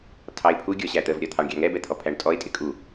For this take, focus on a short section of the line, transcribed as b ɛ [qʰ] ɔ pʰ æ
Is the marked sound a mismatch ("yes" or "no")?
yes